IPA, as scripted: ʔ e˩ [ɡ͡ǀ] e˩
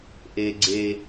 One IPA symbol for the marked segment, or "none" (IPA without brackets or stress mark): ɡ͡ǀ